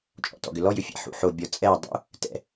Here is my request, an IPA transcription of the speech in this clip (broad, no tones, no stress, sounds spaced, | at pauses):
t͡ʃʼ ɔ̰ t ɔ̰ ɡ ʏ l ɔ j ʏ fʲ ɛ̰ ħ ṵ ħ o bʲ ɔ t͡sʼ ɛ dˤ ṵ | t ɛ̰